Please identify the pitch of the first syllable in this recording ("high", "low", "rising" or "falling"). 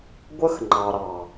high